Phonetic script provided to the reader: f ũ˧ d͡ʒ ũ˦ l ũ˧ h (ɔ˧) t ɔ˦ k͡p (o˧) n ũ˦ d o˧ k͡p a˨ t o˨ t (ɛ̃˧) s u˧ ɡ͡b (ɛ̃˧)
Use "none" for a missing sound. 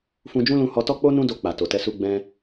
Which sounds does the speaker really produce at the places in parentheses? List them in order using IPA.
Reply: ɔ˧, o˦, ɛ˧, ɛ̃˧

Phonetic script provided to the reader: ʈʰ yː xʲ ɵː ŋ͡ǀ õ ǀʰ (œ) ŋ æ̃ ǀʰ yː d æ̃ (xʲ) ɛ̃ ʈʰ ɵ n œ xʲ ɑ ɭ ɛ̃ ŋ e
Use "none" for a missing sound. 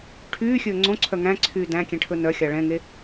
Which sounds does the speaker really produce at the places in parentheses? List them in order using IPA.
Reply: œ, kʲ

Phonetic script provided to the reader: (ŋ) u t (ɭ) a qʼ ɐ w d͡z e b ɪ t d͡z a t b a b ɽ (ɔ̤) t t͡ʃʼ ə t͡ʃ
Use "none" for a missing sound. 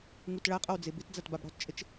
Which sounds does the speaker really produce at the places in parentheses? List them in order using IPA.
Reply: ŋ, ɭ, ɔ̤

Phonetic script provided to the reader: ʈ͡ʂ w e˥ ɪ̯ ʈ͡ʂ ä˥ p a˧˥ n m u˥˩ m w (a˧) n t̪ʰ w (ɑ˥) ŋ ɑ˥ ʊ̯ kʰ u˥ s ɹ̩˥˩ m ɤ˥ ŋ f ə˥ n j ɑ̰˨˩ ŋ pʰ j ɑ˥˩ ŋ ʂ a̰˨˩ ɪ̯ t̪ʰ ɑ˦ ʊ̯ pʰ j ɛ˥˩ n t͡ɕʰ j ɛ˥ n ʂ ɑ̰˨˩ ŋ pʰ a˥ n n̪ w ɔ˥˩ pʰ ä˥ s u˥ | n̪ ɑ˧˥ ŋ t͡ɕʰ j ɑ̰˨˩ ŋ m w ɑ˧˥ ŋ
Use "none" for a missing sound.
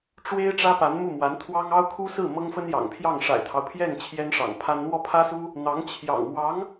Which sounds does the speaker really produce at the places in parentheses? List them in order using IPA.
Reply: a˧˥, ɑ˥

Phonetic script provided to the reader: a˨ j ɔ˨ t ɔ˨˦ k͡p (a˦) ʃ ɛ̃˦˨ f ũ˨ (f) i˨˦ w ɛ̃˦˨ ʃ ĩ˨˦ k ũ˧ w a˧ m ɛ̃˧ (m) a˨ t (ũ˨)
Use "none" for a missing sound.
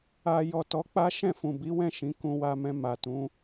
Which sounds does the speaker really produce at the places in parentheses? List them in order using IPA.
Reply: a˦, b, m, ũ˨˦

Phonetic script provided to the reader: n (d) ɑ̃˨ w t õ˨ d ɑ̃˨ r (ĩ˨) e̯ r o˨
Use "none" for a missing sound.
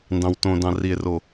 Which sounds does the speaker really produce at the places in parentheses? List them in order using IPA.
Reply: d, i˨

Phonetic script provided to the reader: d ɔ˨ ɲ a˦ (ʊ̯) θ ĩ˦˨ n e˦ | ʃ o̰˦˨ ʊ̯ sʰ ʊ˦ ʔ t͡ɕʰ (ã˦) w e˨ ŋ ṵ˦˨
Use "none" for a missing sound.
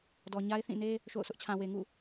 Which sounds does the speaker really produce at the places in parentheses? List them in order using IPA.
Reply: ɪ̯, ã˨

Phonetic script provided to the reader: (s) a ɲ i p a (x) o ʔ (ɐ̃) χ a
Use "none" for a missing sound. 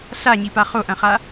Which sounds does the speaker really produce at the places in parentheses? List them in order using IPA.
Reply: ɬ, χ, ɐ̃

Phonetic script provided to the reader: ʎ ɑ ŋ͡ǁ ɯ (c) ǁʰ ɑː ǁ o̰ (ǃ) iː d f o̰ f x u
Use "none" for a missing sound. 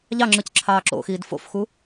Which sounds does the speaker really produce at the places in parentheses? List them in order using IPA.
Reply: c, x

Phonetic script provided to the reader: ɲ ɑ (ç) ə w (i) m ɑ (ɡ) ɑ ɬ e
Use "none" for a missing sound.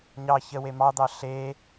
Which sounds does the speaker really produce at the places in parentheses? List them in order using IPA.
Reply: ç, e, d̪

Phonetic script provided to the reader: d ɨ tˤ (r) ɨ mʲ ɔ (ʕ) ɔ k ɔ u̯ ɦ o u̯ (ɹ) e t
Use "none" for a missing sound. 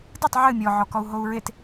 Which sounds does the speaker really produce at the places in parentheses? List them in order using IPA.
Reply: ʕ, ʕ, ɹ

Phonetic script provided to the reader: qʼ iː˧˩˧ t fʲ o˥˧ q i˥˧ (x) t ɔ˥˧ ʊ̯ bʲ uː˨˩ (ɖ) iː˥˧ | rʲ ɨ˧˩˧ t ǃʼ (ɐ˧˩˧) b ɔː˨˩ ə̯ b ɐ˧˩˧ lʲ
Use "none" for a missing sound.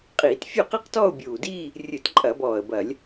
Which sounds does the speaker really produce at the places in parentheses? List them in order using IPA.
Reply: q, d, ɐ˧˩˧

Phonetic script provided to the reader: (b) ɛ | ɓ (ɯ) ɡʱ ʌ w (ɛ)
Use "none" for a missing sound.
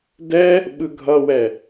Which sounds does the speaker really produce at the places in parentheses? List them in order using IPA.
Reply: d, ɯ, ɛ

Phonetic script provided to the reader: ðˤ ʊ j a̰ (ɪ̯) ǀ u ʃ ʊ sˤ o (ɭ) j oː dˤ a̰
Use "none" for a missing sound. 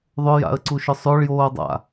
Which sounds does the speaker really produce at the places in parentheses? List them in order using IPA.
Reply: ə̯, ɭ

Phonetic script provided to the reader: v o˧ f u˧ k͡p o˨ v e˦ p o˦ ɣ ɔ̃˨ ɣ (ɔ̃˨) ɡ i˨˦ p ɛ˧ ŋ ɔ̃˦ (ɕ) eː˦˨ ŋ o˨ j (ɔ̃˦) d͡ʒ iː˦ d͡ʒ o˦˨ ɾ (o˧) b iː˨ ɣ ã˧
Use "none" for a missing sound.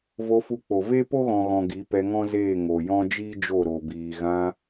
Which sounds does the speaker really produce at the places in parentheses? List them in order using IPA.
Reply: ɔ̃˨, z, ɔ̃˦, o˨

